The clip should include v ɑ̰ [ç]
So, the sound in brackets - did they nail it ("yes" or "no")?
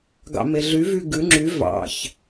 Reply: yes